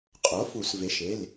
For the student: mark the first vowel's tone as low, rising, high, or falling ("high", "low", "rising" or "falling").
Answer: rising